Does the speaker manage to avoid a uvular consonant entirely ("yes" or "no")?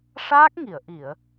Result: yes